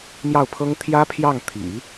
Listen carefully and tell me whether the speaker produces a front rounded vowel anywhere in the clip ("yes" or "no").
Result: no